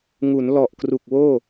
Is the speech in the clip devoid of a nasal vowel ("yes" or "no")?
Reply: yes